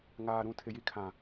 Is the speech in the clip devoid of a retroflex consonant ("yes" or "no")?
yes